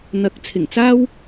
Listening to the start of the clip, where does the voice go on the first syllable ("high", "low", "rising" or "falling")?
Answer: rising